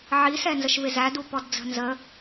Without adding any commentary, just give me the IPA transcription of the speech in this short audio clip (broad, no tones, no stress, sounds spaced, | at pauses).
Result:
ʕ i s ɛ n z ə ʃ v ɪ z æ d u p ɔ d d͡z ə̤ n z ə